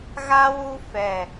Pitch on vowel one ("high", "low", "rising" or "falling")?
high